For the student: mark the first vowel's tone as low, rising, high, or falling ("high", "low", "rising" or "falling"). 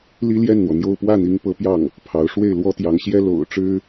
high